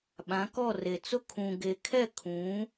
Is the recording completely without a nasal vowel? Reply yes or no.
no